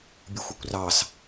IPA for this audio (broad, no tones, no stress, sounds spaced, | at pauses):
bʲ ɨ xʷ ə kʷ r ɑ s